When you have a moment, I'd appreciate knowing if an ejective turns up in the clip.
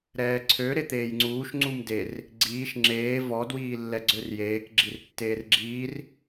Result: no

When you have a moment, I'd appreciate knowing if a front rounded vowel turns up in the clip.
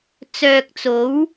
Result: yes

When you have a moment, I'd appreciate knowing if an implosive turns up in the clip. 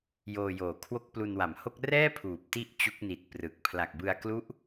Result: no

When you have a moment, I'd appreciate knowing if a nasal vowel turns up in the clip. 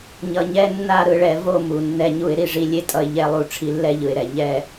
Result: no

